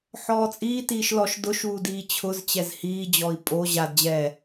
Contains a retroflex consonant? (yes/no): no